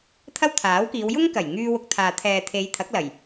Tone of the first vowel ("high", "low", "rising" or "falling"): high